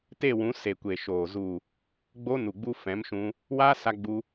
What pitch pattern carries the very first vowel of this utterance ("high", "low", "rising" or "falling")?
falling